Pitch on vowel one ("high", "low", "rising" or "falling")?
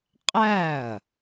falling